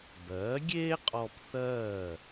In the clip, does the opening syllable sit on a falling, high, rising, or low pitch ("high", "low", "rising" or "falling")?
rising